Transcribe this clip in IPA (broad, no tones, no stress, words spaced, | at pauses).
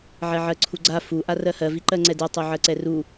ʕɛʕɜǀʰuɡ͡ǀa fu ʔarɜhɜ viǃɜŋ͡ǀɛdɜ tˤuʕɜǀɛru